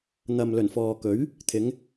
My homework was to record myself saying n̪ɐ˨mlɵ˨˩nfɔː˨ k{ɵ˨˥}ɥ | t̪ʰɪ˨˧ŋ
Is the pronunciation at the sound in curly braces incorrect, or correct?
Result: correct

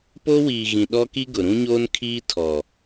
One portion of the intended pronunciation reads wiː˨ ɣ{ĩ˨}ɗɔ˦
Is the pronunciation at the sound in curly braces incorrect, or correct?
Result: correct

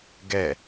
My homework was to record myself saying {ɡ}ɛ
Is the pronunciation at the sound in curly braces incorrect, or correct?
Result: correct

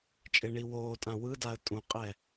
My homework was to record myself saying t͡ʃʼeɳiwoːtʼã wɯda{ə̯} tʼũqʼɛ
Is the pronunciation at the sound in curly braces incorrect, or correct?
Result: correct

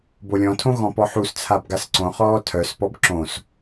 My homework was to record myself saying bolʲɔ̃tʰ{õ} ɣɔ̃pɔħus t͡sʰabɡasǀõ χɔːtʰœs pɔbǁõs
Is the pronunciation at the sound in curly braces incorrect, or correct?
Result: correct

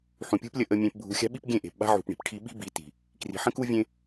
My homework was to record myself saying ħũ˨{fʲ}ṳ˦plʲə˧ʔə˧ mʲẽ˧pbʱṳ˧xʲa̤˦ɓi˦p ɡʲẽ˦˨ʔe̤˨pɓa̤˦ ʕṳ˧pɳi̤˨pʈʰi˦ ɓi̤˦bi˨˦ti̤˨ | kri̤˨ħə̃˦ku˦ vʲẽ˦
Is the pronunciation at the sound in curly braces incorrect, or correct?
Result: incorrect: pʲ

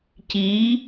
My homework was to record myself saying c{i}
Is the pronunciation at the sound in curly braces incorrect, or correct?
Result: correct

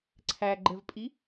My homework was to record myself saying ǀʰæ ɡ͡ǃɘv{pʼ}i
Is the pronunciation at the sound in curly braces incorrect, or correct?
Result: correct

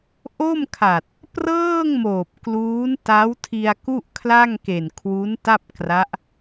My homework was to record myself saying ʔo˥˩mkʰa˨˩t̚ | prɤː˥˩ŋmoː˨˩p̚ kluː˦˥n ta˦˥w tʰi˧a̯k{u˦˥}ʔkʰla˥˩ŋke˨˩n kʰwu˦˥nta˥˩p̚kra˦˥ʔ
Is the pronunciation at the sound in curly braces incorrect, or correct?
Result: incorrect: u˥˩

